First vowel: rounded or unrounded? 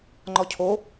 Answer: rounded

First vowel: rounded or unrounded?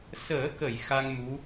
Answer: unrounded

